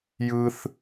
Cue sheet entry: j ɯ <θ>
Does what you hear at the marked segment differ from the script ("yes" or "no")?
no